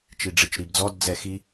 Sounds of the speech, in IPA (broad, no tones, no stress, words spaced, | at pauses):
t͡ʃiɖ͡ʐit͡ʃɾibd͡zɔd d͡zɛxi